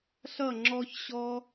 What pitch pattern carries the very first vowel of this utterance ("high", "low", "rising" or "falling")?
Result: falling